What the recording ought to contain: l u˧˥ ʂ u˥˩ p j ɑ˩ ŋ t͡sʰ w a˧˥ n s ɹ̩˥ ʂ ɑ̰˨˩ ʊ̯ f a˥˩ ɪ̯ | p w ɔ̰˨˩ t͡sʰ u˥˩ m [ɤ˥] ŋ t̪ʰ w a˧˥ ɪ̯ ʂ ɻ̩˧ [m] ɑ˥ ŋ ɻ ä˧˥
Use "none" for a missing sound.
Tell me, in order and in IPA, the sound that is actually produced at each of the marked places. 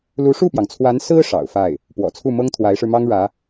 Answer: ɤ˥, m

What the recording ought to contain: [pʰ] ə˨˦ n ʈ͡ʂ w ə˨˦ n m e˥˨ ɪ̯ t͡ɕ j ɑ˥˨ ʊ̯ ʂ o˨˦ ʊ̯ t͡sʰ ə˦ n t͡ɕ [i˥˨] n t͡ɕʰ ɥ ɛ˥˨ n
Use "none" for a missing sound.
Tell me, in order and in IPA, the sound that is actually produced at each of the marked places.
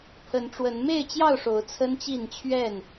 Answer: pʰ, i˥˨

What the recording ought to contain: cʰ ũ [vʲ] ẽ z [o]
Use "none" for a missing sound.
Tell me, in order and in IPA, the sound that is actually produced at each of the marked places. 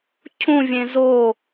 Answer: vʲ, o

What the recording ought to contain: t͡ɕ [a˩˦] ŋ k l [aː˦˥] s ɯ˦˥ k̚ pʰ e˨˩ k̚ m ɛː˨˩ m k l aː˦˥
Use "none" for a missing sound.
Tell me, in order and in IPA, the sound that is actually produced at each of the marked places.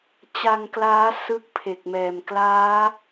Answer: a˧, aː˦˥

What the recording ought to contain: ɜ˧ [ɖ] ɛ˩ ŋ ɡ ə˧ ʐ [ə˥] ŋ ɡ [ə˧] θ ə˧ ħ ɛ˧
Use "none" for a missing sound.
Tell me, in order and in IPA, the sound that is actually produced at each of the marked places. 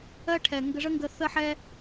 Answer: ʈʰ, ə˥, ə˧

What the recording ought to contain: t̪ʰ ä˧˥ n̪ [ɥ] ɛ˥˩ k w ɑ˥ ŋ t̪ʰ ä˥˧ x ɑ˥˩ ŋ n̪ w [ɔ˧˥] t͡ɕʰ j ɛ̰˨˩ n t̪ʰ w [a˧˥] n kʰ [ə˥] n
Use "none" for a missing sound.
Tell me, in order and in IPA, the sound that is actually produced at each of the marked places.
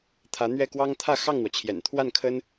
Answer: ɥ, ɔ˩, a˥˩, ə˥

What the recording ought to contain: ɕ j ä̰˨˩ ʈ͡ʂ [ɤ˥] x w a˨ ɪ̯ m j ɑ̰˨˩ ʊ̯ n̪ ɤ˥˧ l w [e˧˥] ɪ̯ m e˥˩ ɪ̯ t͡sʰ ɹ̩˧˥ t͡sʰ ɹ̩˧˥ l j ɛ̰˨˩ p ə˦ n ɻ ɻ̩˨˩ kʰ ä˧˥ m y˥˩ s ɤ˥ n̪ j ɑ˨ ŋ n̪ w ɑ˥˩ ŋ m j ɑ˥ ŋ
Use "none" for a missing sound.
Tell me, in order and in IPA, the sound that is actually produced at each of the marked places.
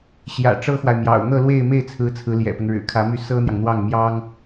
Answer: ɤ˥, e˥˧

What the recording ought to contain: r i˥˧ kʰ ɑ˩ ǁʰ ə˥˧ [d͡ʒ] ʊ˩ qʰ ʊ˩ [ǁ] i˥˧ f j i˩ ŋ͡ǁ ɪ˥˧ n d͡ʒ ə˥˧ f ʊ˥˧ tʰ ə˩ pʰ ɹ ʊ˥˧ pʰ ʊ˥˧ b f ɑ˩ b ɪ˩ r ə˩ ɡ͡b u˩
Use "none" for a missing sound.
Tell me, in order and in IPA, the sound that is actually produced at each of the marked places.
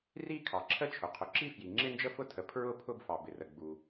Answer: t͡ʃʰ, ǁ

